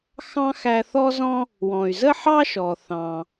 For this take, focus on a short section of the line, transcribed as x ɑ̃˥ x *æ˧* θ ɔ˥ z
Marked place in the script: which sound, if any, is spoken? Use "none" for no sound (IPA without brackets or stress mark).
æ˧